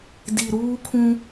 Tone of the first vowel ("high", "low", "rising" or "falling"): low